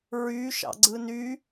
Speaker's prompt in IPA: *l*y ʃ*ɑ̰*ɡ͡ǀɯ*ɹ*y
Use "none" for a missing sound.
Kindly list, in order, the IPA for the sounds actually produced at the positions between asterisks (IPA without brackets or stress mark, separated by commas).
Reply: ɹ, ɑ̰, n